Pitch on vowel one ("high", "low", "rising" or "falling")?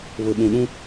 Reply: low